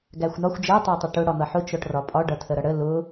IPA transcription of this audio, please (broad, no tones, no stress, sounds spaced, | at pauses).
ɡ æ xʷ n ɒ xʷ d͡ʒ æ tˤ æ tˤ ə ʈ ʊ ɽ ɒ n̪ ʌ ħ ʊ t͡ʃ ɔ ʈ r ɒ pʼ ɒ ɖ ʌ tʰ ə ɾ ʌ ɽ ə l ʊ